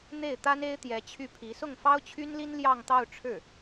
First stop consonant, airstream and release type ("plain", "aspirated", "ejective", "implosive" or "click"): plain